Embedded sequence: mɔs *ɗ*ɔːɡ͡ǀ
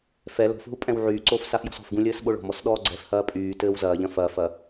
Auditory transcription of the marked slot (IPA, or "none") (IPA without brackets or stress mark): ɗ